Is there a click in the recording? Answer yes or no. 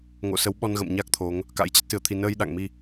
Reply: no